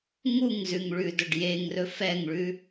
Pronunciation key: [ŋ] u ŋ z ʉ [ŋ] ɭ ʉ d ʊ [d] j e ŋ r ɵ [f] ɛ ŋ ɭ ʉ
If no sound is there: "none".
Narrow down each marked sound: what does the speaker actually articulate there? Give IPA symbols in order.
ŋ, ŋ, ɖ, f

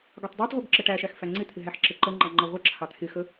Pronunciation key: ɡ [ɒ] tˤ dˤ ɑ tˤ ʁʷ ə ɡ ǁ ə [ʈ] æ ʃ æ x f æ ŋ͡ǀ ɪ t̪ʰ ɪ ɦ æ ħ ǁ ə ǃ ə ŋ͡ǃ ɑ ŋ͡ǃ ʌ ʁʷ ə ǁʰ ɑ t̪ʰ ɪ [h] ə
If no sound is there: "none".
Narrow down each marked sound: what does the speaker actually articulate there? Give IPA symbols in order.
ɒ, ʈ, x

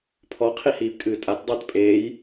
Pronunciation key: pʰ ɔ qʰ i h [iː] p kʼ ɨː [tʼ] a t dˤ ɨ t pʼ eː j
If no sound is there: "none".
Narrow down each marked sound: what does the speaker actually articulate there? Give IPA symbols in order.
iː, tʼ

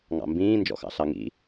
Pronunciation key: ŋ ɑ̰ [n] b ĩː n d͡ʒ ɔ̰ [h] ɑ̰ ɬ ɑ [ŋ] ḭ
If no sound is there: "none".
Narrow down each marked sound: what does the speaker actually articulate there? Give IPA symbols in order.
m, x, ŋ

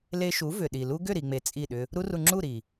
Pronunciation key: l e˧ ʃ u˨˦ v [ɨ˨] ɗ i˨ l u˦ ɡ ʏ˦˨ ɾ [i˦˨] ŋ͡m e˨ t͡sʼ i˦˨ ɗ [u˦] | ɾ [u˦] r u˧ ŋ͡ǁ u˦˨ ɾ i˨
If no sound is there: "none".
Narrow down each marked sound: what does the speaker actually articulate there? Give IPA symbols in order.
ʏ˨, i˨, ʏ˦, u˦

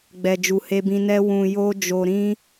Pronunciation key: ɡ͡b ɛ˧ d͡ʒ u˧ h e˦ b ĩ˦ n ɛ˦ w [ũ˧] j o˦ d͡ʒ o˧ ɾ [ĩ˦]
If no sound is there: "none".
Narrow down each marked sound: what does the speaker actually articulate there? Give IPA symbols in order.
ũ˧, ĩ˦

